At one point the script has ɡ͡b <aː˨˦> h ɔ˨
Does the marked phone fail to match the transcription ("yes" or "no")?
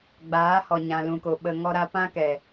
no